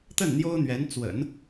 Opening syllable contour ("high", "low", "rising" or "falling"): falling